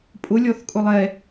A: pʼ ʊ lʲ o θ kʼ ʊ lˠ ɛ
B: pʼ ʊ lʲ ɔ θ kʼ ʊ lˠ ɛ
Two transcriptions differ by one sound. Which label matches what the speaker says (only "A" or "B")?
B